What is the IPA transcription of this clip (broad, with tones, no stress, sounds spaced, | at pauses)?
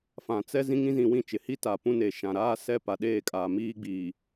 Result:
f ã˨ t͡s ɛ˦ z ĩ˦ ŋ ĩ˦ z ĩ˨ w ĩ˦˨ t͡ʃ ɪ˨ h i˦ t a˨ p ũ˦ n e˨ ʃ ã˨ ɾ aː˦ s ɛ˦ p a˨ ɗ eː˦˨ kʼ aː˨ m iː˦ ɡ͡b iː˨